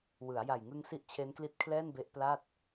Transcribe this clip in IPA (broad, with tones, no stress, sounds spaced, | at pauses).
w ɯ˩˦ a̯ j a˨˩ j ŋ ɯ˧ ŋ s i˦˥ ʔ t͡ɕʰ e˦˥ n k l i˦˥ t̚ kʰ l ɛː˥˩ n b e˦˥ ʔ p l a˥˩ t̚